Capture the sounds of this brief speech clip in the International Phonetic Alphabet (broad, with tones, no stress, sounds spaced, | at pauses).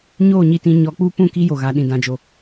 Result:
ɲ oː˦˨ ɲ i˨ t ĩ˨ ɲ ɔ˨ k͡p uː˦ p ũ˦˨ k i˦ j o˨ ɣ a˨ ɗ ĩ˨ d ã˨ d͡ʒ o˨